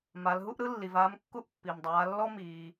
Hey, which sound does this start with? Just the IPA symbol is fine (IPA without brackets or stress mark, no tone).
m